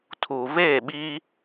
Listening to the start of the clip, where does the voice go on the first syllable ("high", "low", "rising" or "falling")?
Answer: low